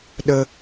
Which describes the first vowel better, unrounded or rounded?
unrounded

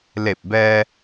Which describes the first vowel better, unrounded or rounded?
unrounded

